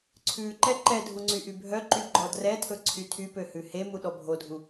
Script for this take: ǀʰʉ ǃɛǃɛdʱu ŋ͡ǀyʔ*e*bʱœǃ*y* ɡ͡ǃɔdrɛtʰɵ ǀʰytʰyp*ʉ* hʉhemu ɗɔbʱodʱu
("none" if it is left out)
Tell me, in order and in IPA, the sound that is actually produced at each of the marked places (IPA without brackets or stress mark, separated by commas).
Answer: y, y, ø